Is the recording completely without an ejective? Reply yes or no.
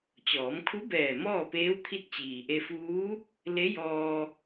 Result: yes